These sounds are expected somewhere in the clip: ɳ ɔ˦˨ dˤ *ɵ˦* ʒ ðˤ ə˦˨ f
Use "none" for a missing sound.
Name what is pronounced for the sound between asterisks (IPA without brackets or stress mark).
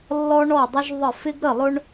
ə˦